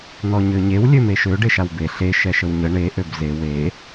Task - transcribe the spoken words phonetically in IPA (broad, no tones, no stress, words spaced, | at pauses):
n̪ɔɲøɲew lʲømeʃø ɖeʃawbe ɬe ʃɛʃəwɲə ɳe ʔøbze we